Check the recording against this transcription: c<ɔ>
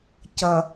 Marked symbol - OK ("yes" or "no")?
no